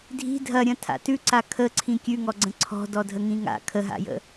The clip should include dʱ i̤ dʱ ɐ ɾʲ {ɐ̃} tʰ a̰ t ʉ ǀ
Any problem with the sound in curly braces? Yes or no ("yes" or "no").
no